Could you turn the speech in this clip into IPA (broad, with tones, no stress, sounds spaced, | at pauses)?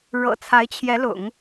ɻ ɤ̰˨˩ t͡sʰ a˧˥ ɪ̯ t͡ɕʰ j ɛ˧˥ l ʊ̰˨˩˦ ŋ